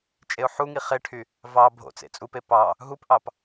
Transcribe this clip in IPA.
t͡ʃʼ e ʊ̯ ħ u ŋ i χ e ʈʰ y | v ɑ bʱ o̰ t͡s ḛ t͡sʼ u p e p ɑ | ɦ u p ʔ ɑ p

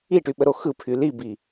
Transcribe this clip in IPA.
i ʈ y ɓ ə ɾ o x ɯ pʰ y l i b i

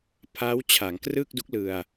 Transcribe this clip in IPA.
pʰ a˦˥ w t͡ɕʰ a˩˦ ŋ k r ɯ˥˩ k̚ d u˦˥ k̚ l ɯ˧ a̯

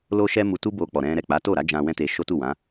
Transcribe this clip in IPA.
l o˦ ʃ ɛ˦ m u˧ t u˦ b o˧ k͡p ɔ˨ ɾ ɛ̃˧ ɾ ɛ˨ k͡p a˨˦ t o˦˨ ɾ a˨˦ d͡ʒ ã˦ w ɛ̃˦ t e˧ ʃ o˦ t u˦˨ w ã˨˦

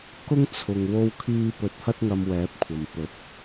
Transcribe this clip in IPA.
k ʊ˥ ŋ t͡sʰ ʊ˨ ŋ w o˥ w kʰ iː˥ p ɵ˧ t̚ h ɐ˥ t̚ ŋ ɐ˧ m w ɛː˨˥ p̚ kʷʰ ɐ˨ m p ɵ˨˥ t̚

